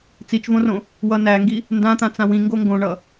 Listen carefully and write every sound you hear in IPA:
t͡s i t͡ʃ v õ r õ | w ʌ n æ ŋ ɡ i | n d ã t̪ ã t͡s ã w ĩ ŋ ɡ o ŋ ɡ õ ɳ ʌ

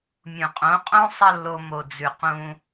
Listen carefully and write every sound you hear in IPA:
mʲ ũ˨ qʼ õ˨˦ qʼ õ˦ sˤ ɐ˦ lː o˧ m o˨ d͡z ʉ˧ q ũ˦

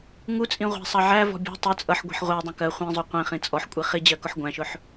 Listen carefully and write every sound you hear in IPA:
ŋ u t͡sʼ ĩ ʁʷ æ̤ sˤ ɑ ʕ æ v ɔ̤ bʲ ɔ̤ tˤ ʊ t͡sʼ ʌ ħ ɡʷ i̤ ħ ʁʷ ɜ dˤ ũ k ɜ χʷ ĩ zˤ u qʷ ĩ χ ĩ t͡sʼ ɔ ħ kʷʼ i χ i d͡ʑ ɜ k ʊ ħ ɡʷ æ̃ ʃ ʊ ħ

